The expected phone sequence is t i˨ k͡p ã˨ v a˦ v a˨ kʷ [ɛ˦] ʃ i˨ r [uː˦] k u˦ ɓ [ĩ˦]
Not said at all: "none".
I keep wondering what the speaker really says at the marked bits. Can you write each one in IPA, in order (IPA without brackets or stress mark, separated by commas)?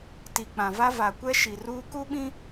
ɛ˦, uː˦, ĩ˦